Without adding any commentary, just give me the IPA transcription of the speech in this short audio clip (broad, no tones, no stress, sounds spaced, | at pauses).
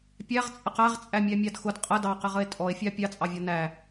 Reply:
pʲ æ ʁ t͡sʼ ə q æ ʁ t͡sʼ æ mʲ æ mʲ ɑ d x ʊ d qʼ ə d ɑ q ɪ ʁ ə e̯ tʼ ɔ e̯ fʲ ɑ pʲ ɑ t͡sʼ ɑ vʲ ɒ n æ